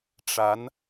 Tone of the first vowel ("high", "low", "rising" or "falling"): rising